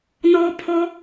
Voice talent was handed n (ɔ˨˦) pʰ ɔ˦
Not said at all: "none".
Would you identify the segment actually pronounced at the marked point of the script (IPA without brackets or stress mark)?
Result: ɔ˦